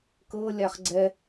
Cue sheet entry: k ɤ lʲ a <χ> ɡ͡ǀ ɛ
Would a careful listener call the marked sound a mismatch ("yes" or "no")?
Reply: no